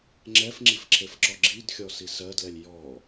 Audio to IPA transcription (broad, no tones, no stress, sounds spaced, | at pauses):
ŋ͡ǁ ɛ f ŋ͡ǁ i f ǁʰ e f ǁ ɔ ɡ͡ǁ i d xʲ ɔ s i s ɜ d l ɛ lʲ j ɔ